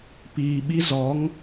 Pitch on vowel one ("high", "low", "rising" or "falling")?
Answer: low